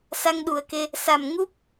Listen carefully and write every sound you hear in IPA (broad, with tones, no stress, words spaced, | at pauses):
sa˧ŋɗu˨˩ə̯ke˧ | sa˨˩m ŋu˦˥p̚